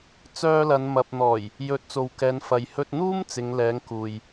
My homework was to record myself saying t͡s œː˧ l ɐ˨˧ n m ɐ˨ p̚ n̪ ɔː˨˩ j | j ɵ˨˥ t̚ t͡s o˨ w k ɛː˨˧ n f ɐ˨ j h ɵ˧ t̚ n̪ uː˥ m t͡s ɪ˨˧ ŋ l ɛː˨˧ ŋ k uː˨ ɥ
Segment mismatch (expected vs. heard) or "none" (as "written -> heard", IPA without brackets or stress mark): ɥ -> j